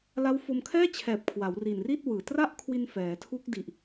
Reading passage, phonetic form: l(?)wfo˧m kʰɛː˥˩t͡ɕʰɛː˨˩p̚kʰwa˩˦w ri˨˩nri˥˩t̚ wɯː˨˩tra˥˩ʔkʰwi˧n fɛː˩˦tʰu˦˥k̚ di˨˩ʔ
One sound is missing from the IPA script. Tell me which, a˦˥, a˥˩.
a˦˥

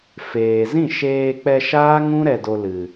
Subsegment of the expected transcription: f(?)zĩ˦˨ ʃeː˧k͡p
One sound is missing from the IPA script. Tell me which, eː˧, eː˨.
eː˨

